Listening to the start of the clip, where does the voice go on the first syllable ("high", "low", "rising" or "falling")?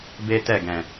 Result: high